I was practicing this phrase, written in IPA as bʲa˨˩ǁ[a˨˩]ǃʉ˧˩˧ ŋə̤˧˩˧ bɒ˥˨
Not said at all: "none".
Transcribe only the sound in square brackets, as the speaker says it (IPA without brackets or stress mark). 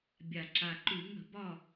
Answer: a˨˩